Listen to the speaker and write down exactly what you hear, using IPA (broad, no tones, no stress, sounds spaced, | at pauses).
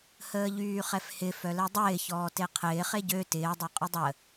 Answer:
h əː ʎ yː χ ɛ f h ɪ f œ l ɛ dˤ ɪː ç ɔː t e qʰ ɪː χ e ɟ ø t ɪː dˤ e qʼ ʏ dˤ ə